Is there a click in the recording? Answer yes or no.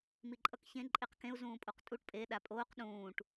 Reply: yes